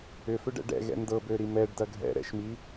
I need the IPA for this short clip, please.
ʏ f ʏ ɖ ɛ̰ ɖ ɛ̰ ɣ ɛ̰ n d ɤ b ø ɾ i m ɛ ɖ d ɐ ɡʱ ɛ̰ ɾ ɛ̰ ʃ m i

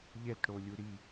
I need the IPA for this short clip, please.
ʎ ɛ t ɽ o lʲ u ɾ i

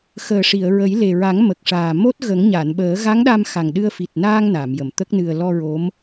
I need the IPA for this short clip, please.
x əː˨˩ ʂ i˨˩˨ ə̯ ɹ ə˨˩˦ j l e˨˩ ɹ a˨˩˦ ŋ m ə˨˩ k̚ ʂ aː˨˩ m o˦˥ t̚ ɣ ə˨˩˦ ŋ ɲ a˨˩˨ n ɓ əː˨˩˦ ɣ a˧˥ ŋ ɗ a˧ m x a˨˩ ŋ ɗ ɨ˧ ə̯ f i˨˩ t̚ n aː˧ ŋ n a˨˩˨ m j ə˨˩˨ m t̪ ə˦˥ k̚ n ɨ˧ ə̯ l ɔ˧ ɹ o˧˥ m

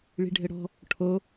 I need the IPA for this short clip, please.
ɭ i̤ ɖʱ ɘ ɽ ɔ̤ | ʈʰ o

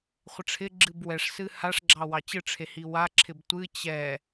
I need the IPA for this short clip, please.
χʷ ɪ ʈ͡ʂʰ ɪ ɡ͡ǁ ɨ b w ɛ ʂ s ɨ h a ʂ ɡ͡ǁ ɑ w ɑ t͡ɕ ɨ ʈ͡ʂʰ e h i w a ǁʰ ɪ b tʷ ɨ t͡ɕ ɛ

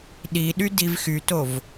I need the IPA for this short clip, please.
ɗ i ɗ y d i v x y t o v

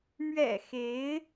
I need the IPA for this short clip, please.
m ɥ ɛ̰˨˩ x e˧˥ ɪ̯

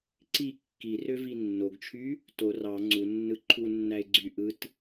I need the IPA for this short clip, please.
ǀ i kː i r ø v i nː o ɡ t͡ʃʰ y | t o r ɑ ŋ͡ǀ u nː ɯ ǃʰ u nː æ ɪ̯ ɡ͡ǀ y ʔ ɯ t

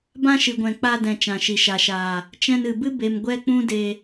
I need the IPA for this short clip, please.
b ã˦ ʃ ɨ˨ ɡʷ ɛ̃˨ k͡p a˧ d ɛ̃˨ t͡ʃ ã˨ ʃ i˨ ʃ a˨ ʃ aː˨ | t͡ʃ ɛ̃˧ n ɨ˨ b ɨ˦ b e˧ m ɡʷ ɛ˦ k͡p ũ˦ d e˧

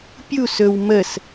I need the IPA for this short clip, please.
pʲ u s ɵ w m ə s

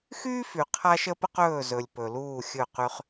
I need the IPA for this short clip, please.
x yː˦ f y˨ qʰ a˦ ʃ ə˦ p ə˦ q ɵː˦˨ z ɵ˨ lʲ p ɵ˨ l uː˦˨ xʲ ɵ˦˨ q y˦ χ

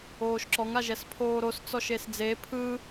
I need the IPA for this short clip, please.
oː ʃ ǁ ɔ ŋ a ʒ ɛ s pʰ oː ɾ o s t͡s ɔ ʃ e s d͡z e pʰ ɯ

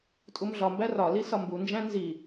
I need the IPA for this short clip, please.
tʼ u m ɮ ɒ m b æ r ɒ l i s ɒ m b u n d͡ʒ æ̃ n z i

